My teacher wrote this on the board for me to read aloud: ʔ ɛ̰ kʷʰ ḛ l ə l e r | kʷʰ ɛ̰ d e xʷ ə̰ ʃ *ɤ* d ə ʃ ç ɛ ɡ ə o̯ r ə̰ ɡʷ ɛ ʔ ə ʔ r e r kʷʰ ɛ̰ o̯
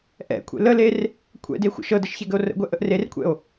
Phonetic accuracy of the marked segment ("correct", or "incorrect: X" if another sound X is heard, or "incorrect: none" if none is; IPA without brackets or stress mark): correct